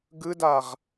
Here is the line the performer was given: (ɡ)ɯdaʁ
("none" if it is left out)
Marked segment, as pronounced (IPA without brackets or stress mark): ɡ